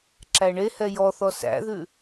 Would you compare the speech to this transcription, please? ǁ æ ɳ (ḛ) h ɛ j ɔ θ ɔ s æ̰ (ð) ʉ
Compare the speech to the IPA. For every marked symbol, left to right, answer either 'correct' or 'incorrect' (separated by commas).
incorrect, correct